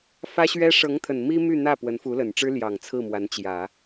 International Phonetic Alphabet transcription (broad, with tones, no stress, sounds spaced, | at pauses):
f ä˥ ɕ ɥ ɛ˥ ʂ ɤ˧˥ ŋ t̪ʰ ə˨˩ n m i˥ m y˥˧ n̪ ä˥˩ p w ə˧˥ n f u˧˥ l ə˨˩ n ʈ͡ʂ ɻ̩˥ l j ɑ˨˩ ŋ t͡sʰ ɹ̩˥˩ m w a˧˥ n t͡ɕ j ä˨˩˦